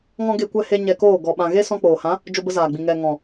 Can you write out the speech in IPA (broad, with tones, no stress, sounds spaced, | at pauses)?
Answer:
ŋ ɔ̃˦ ɡ e˧ kʷ ɛ˧ h e˧ ɲ ɛ˧ k oː˦˨ ɡ ɔ˨ ɓ ã˨ ɣ e˦ s ɔ̃˧ k͡p oː˨ h ã˨˦ | d͡ʒ o˧ b ə˧ z aː˨ ɡ͡b ĩ˨ ŋ ɛ˨ ŋ ɔ̃˨